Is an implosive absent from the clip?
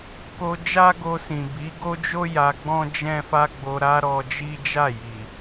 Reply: yes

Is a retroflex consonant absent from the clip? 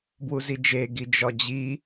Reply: yes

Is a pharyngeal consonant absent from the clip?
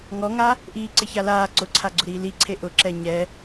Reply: yes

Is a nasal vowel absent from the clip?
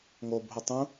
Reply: no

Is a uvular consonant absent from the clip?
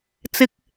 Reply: yes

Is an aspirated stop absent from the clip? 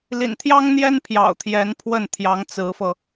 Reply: no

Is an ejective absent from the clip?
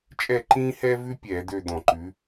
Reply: no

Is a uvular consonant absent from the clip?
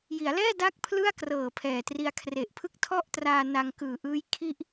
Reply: yes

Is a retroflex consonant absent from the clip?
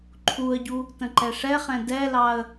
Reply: no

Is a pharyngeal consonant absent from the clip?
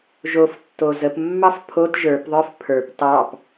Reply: yes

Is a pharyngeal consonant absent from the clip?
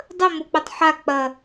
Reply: no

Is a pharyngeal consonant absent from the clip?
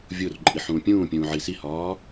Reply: no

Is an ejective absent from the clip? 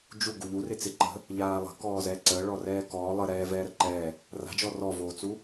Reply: yes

